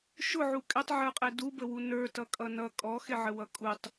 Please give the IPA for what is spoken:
ʃ ʊ ʕ u kʼ ɪ tˤ ʕ ə˞ qʼ ɛ d u b ə w u n ə˞ t ʌ kʼ ʌ n ʌ kʼ ɔ x ɪ ʕ ə w ʌ kʼ u tˤ

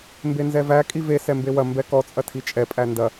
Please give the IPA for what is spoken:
m b e n z ɛ v æ kʼ i v e s ɛ m b e w ɐ m b ɛ k ɔ t͡sʼ ɐ tʰ i t͡ʃʼ ɛ pʼ æ n d ɐ

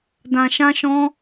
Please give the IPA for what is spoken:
d ã˧ ʃ ã˦ ʃ ɔ̃˦

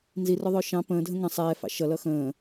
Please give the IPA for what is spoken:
n z i r ʊ ðˤ ʊː ʃ ɑ̃ p ə̃ː dʱ ə̃ ŋ ə̃ sˤ ɛː f ɑ̰ ʃ ʌ l ʌ x ə̃ː

